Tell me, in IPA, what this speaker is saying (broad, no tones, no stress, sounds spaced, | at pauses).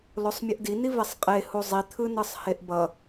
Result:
l o sˤ mʲ ɯ ʔ d i n i v e sˤ qʼ e h u zˤ i t̪ʰ ɯ n ɯ sˤ h e ʔ b ʌ